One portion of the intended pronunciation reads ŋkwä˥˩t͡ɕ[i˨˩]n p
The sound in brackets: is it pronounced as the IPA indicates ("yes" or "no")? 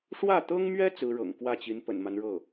no